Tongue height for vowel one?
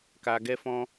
low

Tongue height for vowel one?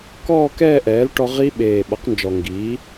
mid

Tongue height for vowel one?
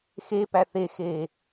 mid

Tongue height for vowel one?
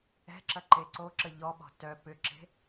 mid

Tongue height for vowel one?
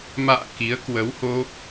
low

